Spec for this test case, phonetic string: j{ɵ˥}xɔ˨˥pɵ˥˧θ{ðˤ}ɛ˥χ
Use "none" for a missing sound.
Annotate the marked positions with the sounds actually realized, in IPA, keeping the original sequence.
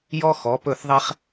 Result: ɔ˥, ðˤ

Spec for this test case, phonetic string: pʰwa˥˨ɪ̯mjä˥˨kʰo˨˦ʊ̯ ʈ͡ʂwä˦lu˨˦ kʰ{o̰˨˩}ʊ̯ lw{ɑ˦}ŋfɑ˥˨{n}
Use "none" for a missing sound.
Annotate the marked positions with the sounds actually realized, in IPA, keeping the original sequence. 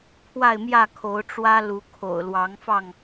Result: o̰˨˩, ɑ˨˦, ŋ

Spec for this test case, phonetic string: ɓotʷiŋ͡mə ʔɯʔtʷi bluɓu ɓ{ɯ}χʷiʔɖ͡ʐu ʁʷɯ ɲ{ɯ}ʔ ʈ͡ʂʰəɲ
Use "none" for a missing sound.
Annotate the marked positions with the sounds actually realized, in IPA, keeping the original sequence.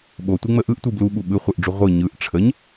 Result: ɯ, ɯ

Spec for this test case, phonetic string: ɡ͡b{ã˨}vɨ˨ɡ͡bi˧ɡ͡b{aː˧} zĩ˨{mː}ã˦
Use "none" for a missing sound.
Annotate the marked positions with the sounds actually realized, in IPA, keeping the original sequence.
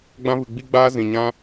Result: ã˧, aː˧, ɲ

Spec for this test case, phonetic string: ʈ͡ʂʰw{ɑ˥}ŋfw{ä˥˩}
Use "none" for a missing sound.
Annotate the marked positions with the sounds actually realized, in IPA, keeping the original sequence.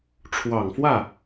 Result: ɑ˨˩, ä˥˩

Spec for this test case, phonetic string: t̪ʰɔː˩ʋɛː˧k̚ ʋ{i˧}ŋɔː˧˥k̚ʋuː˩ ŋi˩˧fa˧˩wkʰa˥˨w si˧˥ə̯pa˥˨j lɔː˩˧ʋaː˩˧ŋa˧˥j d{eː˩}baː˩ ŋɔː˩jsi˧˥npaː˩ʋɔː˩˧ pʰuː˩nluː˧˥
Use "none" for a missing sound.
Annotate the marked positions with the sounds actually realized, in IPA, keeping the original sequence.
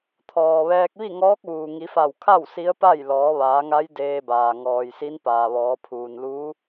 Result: i˥˨, eː˧

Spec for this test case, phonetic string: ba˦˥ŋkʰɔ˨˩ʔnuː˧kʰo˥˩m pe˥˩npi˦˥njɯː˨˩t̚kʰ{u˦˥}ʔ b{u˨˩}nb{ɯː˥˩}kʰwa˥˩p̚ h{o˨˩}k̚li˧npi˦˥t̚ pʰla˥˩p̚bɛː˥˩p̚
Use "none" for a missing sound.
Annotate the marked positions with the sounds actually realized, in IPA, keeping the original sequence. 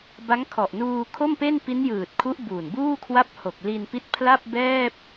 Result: u˦˥, uː˨˩, uː˥˩, o˨˩

